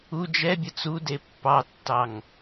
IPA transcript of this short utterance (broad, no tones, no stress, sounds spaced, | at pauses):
u d͡ʒ ɛ bʲ ə t͡s u d e pː ɑ tː ɑ ŋ